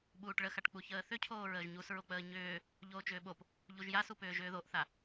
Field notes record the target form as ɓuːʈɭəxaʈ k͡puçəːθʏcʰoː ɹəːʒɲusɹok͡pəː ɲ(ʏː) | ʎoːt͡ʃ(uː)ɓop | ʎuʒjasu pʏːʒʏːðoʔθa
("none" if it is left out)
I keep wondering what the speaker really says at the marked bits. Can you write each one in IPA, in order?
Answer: ʏː, ʏː

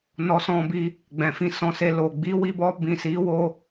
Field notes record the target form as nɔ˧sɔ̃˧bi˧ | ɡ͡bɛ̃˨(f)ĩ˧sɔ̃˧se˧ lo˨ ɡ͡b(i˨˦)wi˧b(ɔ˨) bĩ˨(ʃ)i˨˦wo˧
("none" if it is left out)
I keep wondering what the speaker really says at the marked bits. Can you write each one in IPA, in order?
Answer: f, i˨˦, ɔ˧, s

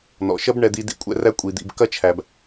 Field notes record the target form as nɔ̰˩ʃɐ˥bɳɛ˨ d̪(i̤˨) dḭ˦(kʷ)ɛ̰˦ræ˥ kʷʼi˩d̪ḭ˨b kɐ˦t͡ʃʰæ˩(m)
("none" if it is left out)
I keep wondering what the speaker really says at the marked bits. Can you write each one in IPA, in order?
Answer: i˨, kʷʼ, b

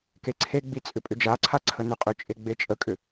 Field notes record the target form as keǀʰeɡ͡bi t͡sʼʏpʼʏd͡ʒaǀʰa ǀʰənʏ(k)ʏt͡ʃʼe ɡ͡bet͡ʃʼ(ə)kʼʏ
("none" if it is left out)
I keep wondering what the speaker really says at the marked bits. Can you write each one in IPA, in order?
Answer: qʼ, ə

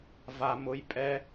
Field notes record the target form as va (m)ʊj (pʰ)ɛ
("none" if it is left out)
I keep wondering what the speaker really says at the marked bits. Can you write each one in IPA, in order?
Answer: m, pʼ

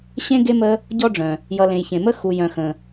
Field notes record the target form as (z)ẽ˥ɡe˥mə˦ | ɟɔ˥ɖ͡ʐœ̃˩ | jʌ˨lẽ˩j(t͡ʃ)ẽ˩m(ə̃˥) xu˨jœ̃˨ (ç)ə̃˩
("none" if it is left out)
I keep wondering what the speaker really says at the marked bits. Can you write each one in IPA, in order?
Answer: ɕ, ç, ə˥, x

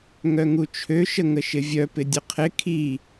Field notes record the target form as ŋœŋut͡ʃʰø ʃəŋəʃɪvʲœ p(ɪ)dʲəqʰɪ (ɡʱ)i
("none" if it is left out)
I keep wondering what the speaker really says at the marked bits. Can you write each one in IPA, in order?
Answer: ɪ, kʰ

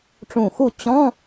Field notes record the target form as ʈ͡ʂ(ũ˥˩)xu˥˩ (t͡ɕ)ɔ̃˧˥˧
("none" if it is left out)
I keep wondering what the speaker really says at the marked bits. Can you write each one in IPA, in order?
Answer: ũ˧˩, t͡ɕ

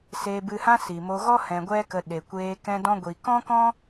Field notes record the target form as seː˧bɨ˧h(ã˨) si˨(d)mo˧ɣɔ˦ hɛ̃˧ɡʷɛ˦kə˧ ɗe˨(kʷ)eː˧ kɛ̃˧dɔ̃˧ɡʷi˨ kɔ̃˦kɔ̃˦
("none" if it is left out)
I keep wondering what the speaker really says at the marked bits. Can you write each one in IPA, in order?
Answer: ã˦, none, kʷ

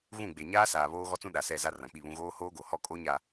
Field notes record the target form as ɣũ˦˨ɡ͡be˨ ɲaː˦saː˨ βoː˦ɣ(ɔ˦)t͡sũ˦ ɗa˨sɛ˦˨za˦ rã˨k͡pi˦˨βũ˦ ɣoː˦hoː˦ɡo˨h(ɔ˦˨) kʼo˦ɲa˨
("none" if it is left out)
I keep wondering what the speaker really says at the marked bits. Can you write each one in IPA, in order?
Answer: ɔ˦, ɔ˦˨

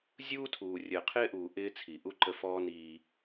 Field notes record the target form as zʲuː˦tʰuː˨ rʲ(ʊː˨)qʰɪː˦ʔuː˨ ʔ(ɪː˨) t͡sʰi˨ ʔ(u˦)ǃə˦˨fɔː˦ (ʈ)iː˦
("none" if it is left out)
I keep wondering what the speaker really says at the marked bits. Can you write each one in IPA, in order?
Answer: əː˨, ɪː˦, u˦, n

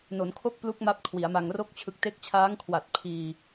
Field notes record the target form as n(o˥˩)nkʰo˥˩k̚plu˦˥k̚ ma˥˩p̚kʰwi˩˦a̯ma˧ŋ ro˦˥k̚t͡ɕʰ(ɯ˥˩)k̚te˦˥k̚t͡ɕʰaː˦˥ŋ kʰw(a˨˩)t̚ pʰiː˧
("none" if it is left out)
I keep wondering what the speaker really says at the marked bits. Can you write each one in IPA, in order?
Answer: o˩˦, ɯ˨˩, a˨˩

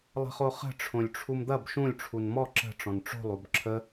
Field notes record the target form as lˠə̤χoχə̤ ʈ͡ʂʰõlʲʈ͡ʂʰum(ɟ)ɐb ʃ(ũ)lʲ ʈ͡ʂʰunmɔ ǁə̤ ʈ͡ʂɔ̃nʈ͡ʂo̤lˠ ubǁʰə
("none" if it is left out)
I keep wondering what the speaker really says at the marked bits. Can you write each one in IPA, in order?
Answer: d̪, ũ

